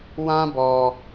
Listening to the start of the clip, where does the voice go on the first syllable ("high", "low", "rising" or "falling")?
high